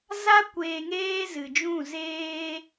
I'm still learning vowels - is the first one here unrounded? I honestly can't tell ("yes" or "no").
yes